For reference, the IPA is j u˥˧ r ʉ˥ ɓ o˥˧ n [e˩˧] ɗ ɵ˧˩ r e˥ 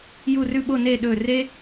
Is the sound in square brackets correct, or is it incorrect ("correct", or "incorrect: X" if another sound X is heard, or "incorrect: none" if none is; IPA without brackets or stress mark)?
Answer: incorrect: e˥˧